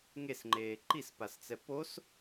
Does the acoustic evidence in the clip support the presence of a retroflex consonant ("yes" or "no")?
no